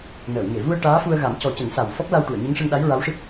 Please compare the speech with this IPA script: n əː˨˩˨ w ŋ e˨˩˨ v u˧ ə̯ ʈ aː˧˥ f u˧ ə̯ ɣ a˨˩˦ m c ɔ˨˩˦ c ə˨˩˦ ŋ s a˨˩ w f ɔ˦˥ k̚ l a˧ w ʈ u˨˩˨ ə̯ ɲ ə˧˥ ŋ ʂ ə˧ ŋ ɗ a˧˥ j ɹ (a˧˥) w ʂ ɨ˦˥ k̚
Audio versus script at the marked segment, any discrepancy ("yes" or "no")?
no